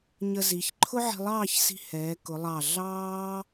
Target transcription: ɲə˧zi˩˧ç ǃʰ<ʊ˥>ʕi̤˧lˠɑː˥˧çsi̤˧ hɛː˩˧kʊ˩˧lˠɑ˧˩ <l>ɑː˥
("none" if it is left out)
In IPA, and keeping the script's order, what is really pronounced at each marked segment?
ʊ˥, ɮ

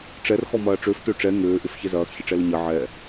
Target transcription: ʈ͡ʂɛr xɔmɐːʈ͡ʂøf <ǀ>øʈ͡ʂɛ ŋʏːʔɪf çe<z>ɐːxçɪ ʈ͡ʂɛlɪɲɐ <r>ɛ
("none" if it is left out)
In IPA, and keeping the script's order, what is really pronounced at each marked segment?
t, z, ʕ

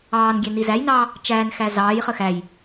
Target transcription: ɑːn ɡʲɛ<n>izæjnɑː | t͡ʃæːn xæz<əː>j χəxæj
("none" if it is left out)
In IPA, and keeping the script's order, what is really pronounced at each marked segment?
n, ɑː

